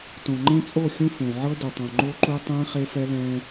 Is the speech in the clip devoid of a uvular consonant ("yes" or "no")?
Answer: no